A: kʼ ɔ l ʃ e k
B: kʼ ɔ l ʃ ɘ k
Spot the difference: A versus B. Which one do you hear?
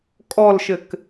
B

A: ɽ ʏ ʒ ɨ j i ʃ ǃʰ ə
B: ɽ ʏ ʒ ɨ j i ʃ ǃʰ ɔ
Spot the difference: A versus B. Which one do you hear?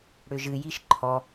B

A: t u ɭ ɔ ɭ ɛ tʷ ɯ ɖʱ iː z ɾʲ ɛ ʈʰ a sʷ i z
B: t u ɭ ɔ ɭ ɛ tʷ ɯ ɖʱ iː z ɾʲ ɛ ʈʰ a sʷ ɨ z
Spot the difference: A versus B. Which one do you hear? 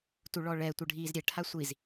A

